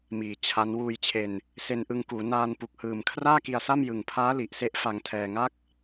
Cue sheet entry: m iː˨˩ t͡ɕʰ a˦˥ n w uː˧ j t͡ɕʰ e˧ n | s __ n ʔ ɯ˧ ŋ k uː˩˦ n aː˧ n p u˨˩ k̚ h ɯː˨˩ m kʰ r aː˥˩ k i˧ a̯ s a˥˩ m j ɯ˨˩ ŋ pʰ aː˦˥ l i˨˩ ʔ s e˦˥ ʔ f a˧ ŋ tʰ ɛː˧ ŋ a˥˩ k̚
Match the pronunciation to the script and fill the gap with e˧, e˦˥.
e˧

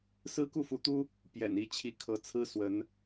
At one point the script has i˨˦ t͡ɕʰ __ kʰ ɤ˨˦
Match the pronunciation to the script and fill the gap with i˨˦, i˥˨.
i˨˦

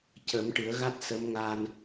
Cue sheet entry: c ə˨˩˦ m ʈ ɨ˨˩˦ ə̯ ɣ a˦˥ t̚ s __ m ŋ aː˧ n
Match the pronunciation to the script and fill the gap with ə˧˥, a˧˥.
ə˧˥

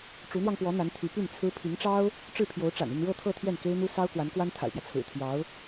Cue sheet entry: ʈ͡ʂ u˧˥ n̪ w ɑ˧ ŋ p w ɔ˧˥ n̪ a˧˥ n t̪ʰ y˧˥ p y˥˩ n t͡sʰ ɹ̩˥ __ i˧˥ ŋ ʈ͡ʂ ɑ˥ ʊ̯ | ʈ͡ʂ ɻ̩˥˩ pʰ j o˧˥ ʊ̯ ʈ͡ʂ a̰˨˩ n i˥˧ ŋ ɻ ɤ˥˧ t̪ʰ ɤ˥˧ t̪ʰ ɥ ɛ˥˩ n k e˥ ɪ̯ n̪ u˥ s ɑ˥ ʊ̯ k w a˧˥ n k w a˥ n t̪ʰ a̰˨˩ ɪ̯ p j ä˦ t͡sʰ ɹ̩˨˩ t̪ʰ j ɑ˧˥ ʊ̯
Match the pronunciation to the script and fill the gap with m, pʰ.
pʰ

